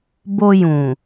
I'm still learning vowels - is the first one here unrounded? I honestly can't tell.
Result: no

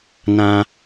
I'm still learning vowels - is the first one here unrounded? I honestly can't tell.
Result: yes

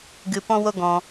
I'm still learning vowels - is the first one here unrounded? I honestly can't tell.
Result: yes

